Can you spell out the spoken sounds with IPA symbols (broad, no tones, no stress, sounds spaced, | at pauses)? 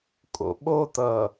kʼ o̰ ɓ o t ʌː